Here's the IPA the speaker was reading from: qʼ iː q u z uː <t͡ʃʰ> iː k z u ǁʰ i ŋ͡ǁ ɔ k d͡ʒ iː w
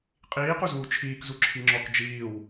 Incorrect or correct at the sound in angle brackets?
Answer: correct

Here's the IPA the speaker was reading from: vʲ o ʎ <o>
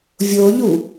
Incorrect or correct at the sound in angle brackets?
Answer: incorrect: u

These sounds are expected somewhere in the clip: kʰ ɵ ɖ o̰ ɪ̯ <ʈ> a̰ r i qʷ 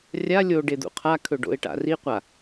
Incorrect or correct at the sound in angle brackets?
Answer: correct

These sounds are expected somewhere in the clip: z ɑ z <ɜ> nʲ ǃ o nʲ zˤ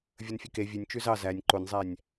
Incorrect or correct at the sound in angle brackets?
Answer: incorrect: æ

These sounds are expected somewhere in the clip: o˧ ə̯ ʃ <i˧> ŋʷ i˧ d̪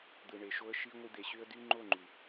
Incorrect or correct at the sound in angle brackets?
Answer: correct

